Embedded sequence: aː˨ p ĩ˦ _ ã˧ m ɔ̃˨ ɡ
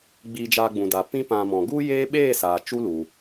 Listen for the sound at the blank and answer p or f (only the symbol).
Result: p